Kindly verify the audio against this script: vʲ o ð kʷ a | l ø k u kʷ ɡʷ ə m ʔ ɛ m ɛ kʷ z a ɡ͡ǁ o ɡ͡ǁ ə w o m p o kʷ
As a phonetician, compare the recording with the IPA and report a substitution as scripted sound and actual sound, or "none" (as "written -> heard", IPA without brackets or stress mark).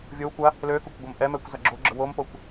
ð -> w